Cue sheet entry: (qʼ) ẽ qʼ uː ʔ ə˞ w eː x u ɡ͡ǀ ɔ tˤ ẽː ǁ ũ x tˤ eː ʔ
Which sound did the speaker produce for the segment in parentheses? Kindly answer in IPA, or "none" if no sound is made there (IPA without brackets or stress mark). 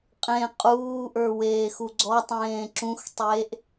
qʼ